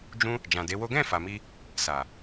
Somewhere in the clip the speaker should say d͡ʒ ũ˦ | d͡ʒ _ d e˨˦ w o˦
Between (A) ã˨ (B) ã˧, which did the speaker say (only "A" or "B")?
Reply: A